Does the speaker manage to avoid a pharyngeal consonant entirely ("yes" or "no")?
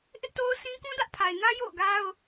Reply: yes